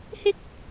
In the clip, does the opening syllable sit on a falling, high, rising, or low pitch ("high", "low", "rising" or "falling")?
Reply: high